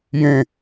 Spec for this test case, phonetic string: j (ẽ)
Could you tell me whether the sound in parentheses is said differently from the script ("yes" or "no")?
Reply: no